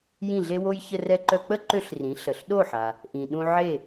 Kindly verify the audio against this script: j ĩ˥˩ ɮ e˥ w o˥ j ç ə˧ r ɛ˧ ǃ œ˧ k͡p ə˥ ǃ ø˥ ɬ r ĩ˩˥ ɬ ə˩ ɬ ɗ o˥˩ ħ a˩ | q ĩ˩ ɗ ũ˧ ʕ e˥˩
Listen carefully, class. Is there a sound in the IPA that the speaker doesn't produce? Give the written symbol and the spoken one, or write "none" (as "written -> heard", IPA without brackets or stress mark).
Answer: q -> ʔ